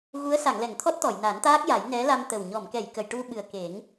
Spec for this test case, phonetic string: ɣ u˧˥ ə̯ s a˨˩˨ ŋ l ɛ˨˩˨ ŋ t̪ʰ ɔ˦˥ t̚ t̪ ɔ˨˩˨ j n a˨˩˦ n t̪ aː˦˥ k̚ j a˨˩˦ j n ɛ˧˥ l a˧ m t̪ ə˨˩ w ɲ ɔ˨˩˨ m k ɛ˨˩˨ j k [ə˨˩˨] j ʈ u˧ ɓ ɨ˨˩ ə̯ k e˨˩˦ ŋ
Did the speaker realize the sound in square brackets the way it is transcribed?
yes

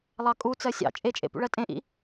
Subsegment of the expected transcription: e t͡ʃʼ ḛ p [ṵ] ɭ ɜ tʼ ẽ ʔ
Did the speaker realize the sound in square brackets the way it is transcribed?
yes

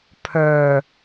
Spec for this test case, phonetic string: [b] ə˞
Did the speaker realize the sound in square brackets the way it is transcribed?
no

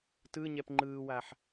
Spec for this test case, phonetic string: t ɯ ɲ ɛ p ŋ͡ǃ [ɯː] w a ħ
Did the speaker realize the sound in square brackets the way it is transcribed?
yes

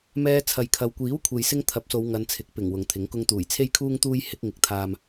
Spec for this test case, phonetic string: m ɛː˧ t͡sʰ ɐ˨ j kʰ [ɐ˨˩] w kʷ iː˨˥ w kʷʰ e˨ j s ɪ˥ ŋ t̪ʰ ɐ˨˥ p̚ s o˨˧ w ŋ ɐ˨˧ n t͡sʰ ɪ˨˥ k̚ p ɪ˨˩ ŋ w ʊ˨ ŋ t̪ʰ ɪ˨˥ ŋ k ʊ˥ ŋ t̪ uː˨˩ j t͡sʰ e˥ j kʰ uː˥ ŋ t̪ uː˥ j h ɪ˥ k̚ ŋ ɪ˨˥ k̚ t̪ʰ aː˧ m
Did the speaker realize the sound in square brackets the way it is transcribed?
no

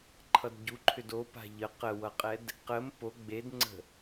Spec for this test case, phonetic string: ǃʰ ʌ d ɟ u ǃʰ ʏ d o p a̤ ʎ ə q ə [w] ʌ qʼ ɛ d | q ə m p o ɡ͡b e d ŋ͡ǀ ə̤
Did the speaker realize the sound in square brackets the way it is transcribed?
yes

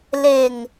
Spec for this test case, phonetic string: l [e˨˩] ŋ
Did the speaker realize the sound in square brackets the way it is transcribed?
yes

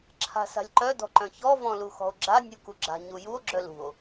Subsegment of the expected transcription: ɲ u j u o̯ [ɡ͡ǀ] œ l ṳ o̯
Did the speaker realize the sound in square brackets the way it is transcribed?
no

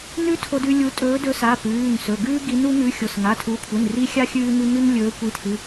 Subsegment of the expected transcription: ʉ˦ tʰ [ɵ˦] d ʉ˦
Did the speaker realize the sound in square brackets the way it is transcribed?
no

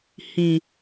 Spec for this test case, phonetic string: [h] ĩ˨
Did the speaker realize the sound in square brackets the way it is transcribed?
yes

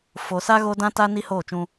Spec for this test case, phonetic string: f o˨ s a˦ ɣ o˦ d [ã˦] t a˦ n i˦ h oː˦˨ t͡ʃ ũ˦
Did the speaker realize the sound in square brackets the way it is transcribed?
yes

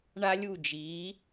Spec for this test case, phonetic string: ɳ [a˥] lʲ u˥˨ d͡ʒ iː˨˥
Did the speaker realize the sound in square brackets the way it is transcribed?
yes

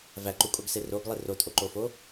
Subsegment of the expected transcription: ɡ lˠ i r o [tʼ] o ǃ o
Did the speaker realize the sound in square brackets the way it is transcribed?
yes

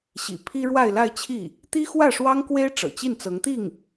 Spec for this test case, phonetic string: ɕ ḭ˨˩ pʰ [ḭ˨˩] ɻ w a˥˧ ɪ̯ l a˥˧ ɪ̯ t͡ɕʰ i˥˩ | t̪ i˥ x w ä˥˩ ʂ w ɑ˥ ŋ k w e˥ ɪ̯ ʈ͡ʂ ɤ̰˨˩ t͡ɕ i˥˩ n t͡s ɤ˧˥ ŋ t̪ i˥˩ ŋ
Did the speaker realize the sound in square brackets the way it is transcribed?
no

